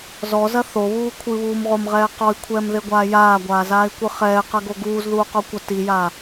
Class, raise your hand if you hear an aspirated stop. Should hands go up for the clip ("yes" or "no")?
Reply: yes